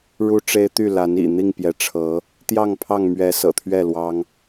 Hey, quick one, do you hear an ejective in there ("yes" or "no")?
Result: no